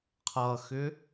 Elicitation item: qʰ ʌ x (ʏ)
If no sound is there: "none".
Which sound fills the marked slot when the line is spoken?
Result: ʏ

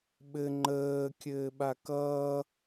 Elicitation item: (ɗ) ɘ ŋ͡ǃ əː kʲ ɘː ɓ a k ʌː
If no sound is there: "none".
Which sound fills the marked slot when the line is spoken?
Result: ɓ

